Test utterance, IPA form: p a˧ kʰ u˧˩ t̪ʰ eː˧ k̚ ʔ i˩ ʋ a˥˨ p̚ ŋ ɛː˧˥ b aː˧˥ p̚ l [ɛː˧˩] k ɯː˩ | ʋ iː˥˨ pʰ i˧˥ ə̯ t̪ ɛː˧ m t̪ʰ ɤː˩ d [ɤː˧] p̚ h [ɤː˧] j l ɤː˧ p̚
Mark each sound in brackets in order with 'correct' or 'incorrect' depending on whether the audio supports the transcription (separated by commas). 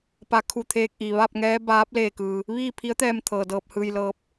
incorrect, correct, incorrect